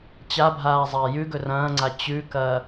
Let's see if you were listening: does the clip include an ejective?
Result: no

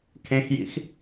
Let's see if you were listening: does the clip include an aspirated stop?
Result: yes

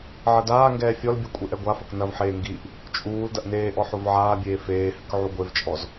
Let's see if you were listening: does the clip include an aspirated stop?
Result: no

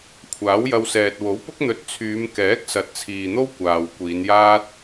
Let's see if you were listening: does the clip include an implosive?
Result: no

